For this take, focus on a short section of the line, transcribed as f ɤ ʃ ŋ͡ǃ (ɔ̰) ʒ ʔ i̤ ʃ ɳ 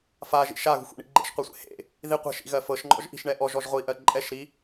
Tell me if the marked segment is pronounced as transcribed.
yes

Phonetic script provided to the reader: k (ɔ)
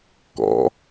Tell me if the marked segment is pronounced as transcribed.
no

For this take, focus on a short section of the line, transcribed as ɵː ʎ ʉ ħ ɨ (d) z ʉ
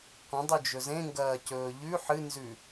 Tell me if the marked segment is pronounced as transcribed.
no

